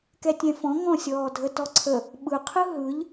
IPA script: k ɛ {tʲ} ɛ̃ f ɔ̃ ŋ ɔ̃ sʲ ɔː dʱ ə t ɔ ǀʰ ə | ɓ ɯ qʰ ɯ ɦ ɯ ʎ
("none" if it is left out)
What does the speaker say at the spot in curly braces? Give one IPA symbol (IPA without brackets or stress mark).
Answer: tʲ